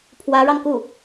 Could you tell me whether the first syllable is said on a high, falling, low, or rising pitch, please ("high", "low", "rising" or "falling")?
rising